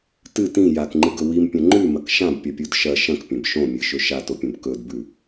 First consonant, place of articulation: alveolar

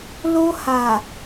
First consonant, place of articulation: alveolar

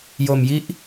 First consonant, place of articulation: palatal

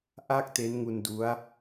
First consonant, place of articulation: glottal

